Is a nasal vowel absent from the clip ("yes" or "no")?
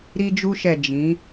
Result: no